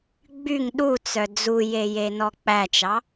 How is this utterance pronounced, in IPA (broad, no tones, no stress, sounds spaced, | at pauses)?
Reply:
ɡ͡b y ŋ ɗ u t͡s œ d͡z u j e j e n ɔ k͡p æ t͡ʃ ɑ